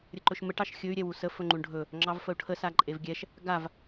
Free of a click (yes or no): no